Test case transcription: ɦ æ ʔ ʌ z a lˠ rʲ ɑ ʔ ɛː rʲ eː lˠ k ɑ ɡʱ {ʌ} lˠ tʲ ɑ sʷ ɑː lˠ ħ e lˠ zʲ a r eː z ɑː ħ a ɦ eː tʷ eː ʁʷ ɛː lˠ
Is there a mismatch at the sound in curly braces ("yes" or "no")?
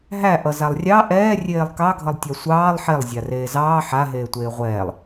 no